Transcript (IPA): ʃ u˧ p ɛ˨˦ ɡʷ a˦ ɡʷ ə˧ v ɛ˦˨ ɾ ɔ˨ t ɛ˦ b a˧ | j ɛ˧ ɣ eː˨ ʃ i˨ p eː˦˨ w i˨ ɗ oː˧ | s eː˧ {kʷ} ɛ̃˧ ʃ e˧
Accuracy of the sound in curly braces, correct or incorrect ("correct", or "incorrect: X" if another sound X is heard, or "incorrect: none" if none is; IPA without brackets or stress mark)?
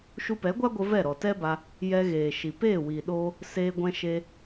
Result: incorrect: ɡʷ